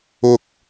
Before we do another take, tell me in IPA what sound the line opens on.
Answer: ʊ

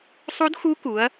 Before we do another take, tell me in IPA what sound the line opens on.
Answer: sˤ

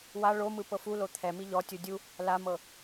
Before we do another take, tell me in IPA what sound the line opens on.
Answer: w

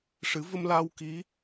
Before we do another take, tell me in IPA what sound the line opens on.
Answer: ʂ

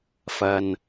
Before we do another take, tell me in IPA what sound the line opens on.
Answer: f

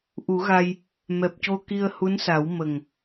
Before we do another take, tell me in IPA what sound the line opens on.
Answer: ʔ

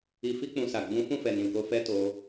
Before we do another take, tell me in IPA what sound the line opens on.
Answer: i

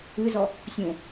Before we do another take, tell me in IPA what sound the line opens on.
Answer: ɨ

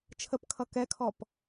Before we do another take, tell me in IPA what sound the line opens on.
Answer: t͡ʃʰ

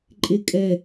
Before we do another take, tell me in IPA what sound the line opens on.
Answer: ǃʼ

